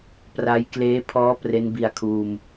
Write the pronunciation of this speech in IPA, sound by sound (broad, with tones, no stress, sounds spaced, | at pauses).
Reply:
p r a˦˥ j k l eː˦˥ pʰ ɔː˦˥ p r e˦˥ n b i˧ a̯ kʰ uː˧ m